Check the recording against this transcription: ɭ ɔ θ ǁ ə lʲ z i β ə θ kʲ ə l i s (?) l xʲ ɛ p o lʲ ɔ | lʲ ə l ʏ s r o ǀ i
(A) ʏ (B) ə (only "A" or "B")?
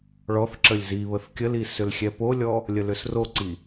A